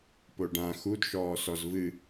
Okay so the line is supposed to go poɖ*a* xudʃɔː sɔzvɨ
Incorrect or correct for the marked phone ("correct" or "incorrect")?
incorrect